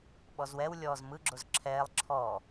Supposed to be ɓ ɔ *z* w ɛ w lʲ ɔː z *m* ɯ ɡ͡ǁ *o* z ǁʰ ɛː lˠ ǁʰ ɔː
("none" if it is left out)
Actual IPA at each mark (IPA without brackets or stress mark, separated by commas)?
z, m, o